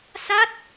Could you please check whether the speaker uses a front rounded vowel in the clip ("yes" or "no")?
no